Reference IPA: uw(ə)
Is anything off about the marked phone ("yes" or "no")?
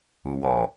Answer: yes